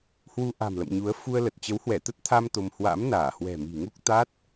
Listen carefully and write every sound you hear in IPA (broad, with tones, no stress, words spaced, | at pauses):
hwu˧ʔa̤˨˩mlə̰˧˨mɲu˨˦ə̯ fu˧ə̯lə˨˩t̚ t͡ɕə˨˦whwɛ˧˩t̪ə˦˥t̚t̪ʰa˧m t̪o˧m hwa̰˧˥m naː˧˩hwɛ̤˨˩mi̤˨˩ ŋu˦˥k̚ t̪a˦˥t̚